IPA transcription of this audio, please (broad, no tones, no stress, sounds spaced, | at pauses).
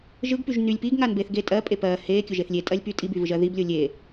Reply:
ʒ ɯ ɡ p y ʒ n y lʲ p i ɡ ŋ a n b e θ ɡ e tʼ ɜ pʼ e p ɜ h e kʲ ʊ ʒ e θ lʲ e tʼ ɜ lʲ p y tʼ i b y v ɯ ʒ ɜ ð i b lʲ o lʲ e